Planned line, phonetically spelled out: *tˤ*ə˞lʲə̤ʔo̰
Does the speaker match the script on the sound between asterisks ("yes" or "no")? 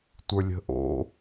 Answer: no